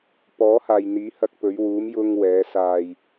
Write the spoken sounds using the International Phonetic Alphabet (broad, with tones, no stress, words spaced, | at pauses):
pɔː˨˥haː˨jn̪iː˨˥ hɐ˧k̚pɵ˨˧ɥ wuː˨˧m jʊ˨ŋ wɛː˨˧ saː˧j